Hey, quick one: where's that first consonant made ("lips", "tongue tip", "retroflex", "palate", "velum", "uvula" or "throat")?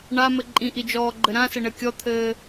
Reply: retroflex